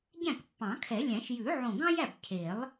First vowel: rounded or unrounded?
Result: unrounded